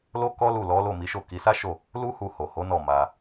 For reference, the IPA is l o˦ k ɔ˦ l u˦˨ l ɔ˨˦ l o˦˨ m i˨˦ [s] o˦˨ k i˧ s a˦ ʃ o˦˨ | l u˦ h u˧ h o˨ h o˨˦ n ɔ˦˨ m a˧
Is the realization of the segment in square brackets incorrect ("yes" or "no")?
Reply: yes